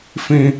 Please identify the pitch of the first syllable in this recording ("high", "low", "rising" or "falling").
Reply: high